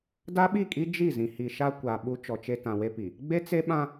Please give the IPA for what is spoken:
da˦ɓi˦˨kʼi˦ d͡ʒi˦˨zĩ˨hi˨ʃa˦ kʷa˨ ɓu˦t͡ʃɔ˨t͡ʃe˦ tã˨we˦pi˨ | ɡ͡be˦t͡se˦ɓã˦

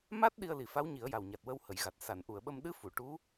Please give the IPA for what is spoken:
ma˦˥t̚ ɗi˧ə̯li˨˩fa˧˥w ɲi˨˩˦ə̯ja˨˩wɲa˨˩t̚ wə˧w hə˨˩˨jɣa˨˩t̚ sa˨˩˨nʔu˨˩˨ə̯ɓə˧m ɗɨ˧˥fu˨˩˨ ʈu˧˥

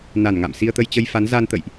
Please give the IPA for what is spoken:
na˧˩nŋa̰˧˨msi˧ə̯ t̪ə˧jt͡ɕə˧jfa˨˦n za˧nt̪ə̰˧˨jʔ

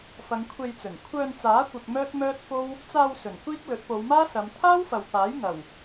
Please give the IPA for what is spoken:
fɐ˨˧ŋkʷʰe˧jt͡sɵ˨˩n kʷʰœː˧nt͡saː˨˥kʷɪ˨k̚ mœː˥t̚mœː˥t̚fo˥w | t͡saː˧w sɵ˨˩nkʷiː˥k̚ lɵ˨˥t̚po˨˧wmaː˥sɐ˨˧m t̪ʰaː˥wfɐ˨wpaː˨˥j ŋɐ˨˩w

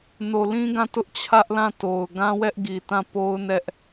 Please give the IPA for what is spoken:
no˨lĩ˦ɡã˦˨ tʊ˦ʔt͡ɕʰä˦ʔlã˦˨ to˨ʊ̯ ɡã˦wɛ˦ʔɡi˨tã˦˨ po˦ʊ̯nɛ˦ʔ

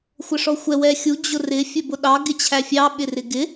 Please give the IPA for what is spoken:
xʷəʂɔxʷɛ wɛxʲu d͡ʑʊrɪ fʲɜbʊɗɑ ɡɪt͡ɕʰæfʲɑ ɓɪrɪɡɪ

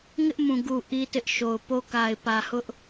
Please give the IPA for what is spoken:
ŋɪ˦ʔmũ˨ɡu˨ ʔi˦tɪ˦ʔʃo˨ʊ̯ po˦ka˨ɪ̯pä˨hʊ˦ʔ

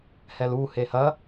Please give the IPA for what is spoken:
hɛlu hehɐ

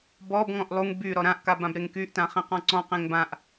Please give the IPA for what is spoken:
bɔbŋɔ̃ʔ lˠuŋ by ɾɔɾãʔka bãbɾeŋkyʔtã χẽqɔ̃ǀɔ̃qẽŋ bãʔ

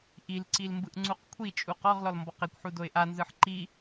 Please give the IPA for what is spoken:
ʔilǀil mbɯʔŋ͡ǀuqkʷʰit͡ʃʼu qɔʁlɔl mbɔqekʷħu doɪ̯ʔanzɯħ ǃi

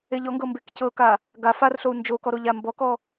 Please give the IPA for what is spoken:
eʎɔŋɡɤ mbekcɤka | ɡa farɬou̯ nd͡ʒokɔ ɾoʎambɔkɔ

